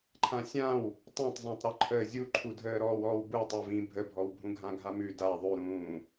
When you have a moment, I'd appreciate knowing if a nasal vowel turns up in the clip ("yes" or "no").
yes